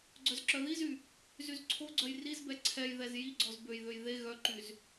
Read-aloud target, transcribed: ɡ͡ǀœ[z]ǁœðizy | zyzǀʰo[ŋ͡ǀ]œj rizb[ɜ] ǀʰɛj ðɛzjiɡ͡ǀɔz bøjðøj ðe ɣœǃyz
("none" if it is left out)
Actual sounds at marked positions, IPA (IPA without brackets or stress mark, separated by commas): z, ɡ͡ǀ, ɛ